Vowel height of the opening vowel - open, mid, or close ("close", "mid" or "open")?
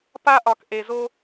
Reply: open